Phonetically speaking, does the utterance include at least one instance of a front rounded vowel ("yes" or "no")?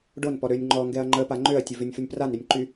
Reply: yes